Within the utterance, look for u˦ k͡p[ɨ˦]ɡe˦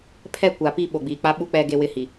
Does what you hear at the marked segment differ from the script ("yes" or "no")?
yes